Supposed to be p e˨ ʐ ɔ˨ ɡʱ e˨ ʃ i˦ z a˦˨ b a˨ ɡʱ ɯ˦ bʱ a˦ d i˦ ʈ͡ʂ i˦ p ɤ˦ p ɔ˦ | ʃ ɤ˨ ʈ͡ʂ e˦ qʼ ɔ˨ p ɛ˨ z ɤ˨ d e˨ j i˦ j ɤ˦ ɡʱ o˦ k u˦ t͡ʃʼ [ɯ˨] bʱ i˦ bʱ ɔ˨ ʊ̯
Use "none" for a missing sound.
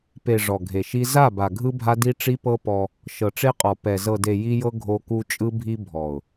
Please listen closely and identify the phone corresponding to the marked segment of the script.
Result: ɯ˦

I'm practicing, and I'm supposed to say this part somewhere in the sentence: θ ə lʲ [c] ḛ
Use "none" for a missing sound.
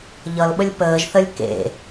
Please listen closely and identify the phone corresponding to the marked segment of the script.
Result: k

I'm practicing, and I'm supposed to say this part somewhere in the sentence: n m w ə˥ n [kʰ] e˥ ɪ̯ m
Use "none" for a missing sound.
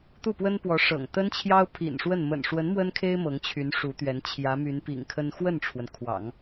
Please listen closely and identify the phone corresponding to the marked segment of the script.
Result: kʰ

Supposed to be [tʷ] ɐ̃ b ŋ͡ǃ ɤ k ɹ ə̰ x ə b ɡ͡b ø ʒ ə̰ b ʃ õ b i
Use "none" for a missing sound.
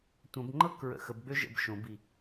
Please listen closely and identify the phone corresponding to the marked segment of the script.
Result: tʷ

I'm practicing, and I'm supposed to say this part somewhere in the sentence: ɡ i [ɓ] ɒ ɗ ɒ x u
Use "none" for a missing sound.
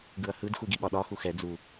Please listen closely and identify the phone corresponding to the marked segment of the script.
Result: ɓ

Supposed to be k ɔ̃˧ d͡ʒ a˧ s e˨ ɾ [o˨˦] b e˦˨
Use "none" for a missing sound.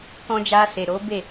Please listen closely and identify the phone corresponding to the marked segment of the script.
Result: o˨˦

